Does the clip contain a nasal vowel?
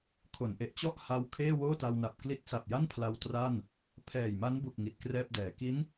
no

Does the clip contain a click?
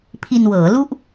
no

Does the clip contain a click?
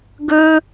no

